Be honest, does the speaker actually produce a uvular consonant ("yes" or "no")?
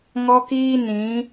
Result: no